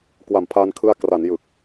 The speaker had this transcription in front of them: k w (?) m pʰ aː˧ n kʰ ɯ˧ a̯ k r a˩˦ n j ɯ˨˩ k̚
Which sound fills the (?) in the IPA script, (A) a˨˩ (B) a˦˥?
A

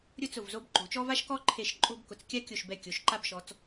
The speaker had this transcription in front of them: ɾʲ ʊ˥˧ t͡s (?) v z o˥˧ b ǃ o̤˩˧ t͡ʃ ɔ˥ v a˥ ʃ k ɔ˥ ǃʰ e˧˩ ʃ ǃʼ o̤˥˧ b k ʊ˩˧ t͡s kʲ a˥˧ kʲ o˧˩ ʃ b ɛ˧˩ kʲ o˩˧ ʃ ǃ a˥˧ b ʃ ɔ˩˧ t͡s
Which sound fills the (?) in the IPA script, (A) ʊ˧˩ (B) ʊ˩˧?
A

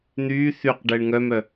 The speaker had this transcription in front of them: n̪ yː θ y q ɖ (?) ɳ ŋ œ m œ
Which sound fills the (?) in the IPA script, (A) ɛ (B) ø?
A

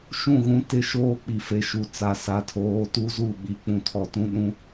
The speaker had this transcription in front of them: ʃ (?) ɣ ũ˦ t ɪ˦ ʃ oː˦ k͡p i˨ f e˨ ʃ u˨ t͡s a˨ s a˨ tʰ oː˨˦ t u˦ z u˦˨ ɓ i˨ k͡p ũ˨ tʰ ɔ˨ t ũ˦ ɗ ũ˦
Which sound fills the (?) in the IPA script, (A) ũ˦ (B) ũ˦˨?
B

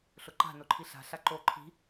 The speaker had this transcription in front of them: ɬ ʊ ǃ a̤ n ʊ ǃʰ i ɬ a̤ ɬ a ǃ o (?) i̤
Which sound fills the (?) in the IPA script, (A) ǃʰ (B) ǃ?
A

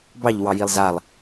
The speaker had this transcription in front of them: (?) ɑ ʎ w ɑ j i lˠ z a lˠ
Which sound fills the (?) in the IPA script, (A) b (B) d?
A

